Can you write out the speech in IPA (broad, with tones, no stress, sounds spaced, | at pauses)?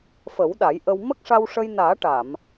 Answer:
f ə˨˩˦ w ɗ a˨˩˦ j ʔ ə˧ w m ə˦˥ k̚ ʂ a˧ w ʂ ə˧ j n aː˨˩˦ ʈ a˨˩˨ m